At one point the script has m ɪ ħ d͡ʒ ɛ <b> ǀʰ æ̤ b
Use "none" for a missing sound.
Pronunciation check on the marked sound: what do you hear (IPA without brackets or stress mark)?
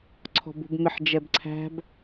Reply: b